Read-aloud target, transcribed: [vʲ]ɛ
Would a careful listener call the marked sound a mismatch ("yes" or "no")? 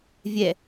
no